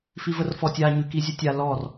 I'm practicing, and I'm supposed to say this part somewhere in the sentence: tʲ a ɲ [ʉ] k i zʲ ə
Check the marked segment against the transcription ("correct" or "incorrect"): correct